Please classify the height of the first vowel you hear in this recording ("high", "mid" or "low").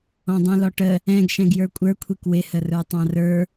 mid